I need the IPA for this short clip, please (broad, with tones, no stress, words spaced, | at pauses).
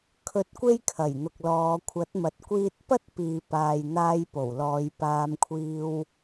kʰɵ˧t̚kʷe˥j kʰɐ˨˩j n̪ʊ˨k̚lɔː˨˧ kʷʰɐ˨˥t̚mɐ˨t̚ kʷiː˧t̚pɐ˥t̚ piː˨paː˨j n̪aː˧jpo˨˩wlɔː˨˧j paː˧mkʷʰiː˧w